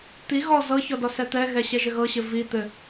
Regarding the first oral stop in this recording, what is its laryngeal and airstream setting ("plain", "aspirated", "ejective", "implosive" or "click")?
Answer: plain